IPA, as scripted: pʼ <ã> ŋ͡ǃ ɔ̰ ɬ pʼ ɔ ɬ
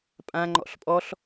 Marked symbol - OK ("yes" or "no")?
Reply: yes